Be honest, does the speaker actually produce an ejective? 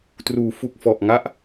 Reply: no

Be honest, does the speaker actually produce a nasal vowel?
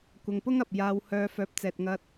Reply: no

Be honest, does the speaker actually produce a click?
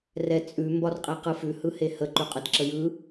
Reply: yes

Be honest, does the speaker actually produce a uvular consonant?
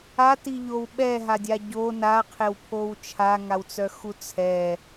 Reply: yes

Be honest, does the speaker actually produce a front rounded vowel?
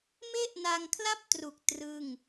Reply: no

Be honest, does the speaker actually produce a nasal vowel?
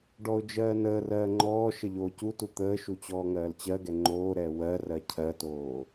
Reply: no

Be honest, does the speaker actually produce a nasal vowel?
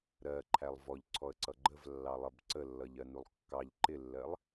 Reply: no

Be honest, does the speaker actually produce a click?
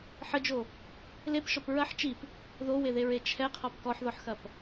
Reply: no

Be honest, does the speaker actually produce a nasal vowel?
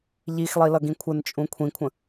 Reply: yes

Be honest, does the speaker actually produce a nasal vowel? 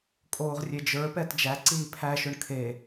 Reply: no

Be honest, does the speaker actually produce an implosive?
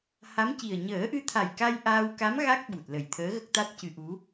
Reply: yes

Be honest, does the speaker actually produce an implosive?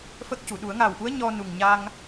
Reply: yes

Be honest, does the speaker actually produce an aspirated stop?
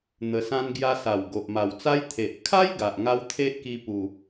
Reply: yes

